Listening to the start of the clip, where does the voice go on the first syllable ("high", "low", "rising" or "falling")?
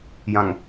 low